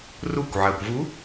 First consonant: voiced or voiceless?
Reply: voiced